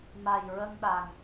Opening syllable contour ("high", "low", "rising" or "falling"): low